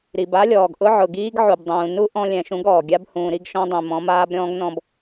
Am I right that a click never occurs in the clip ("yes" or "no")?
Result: yes